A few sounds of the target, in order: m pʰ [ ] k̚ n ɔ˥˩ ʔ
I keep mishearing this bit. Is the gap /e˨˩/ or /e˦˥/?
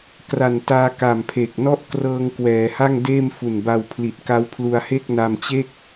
e˨˩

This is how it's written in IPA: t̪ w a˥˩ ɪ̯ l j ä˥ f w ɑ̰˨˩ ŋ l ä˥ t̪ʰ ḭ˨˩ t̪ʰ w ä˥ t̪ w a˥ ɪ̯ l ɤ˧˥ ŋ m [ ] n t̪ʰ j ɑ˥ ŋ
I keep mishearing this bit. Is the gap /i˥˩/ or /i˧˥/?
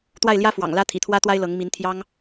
i˧˥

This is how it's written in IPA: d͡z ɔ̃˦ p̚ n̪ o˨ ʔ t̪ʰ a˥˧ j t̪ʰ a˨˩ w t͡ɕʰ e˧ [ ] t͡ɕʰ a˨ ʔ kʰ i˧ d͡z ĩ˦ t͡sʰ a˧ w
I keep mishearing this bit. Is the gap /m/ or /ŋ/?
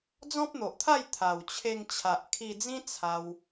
ŋ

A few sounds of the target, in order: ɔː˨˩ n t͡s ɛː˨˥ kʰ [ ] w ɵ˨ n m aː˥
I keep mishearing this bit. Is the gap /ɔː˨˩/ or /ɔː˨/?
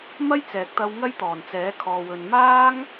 ɔː˨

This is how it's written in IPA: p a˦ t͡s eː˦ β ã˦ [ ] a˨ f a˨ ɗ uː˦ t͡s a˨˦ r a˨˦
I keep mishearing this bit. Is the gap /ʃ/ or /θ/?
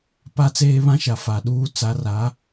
ʃ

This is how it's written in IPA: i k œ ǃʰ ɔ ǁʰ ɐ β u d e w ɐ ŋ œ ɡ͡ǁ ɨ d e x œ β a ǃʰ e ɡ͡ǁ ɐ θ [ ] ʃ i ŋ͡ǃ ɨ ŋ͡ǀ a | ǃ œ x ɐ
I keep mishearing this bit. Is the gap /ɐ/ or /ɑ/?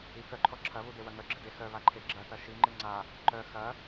ɐ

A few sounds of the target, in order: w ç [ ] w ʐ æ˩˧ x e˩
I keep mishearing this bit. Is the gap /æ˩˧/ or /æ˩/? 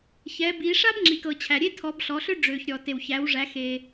æ˩˧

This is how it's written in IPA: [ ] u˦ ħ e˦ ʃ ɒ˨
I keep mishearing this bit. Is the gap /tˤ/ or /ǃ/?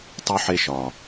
tˤ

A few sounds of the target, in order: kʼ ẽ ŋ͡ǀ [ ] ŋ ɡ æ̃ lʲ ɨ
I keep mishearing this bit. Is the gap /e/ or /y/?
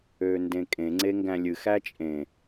e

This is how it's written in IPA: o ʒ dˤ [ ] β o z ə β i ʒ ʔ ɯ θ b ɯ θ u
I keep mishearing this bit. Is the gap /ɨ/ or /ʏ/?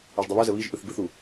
ɨ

